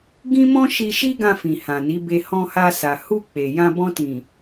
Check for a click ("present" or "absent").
absent